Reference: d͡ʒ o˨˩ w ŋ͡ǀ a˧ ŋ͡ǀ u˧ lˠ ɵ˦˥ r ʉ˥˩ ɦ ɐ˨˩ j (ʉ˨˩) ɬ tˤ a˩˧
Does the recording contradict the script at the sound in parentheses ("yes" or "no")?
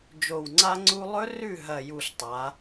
yes